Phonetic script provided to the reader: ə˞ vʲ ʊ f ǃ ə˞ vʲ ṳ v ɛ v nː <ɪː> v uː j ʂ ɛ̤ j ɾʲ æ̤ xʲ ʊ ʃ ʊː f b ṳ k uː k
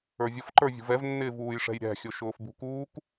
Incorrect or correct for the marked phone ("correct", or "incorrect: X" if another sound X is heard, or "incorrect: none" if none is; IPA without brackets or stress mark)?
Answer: correct